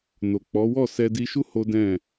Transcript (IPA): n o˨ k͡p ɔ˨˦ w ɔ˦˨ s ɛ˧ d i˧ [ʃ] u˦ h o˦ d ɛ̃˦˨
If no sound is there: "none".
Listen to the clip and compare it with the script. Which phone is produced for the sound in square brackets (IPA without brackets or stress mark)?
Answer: ʃ